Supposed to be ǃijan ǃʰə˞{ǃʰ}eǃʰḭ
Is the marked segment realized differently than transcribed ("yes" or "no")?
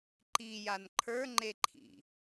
yes